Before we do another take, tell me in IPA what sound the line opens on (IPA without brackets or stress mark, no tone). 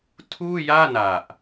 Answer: tʰ